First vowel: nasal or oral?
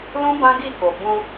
nasal